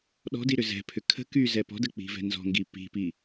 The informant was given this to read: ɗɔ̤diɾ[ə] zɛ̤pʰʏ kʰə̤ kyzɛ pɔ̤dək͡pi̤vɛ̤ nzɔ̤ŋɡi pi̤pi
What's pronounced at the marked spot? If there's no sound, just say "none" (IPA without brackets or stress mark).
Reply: ʏ